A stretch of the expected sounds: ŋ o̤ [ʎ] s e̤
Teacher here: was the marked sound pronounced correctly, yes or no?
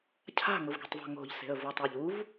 yes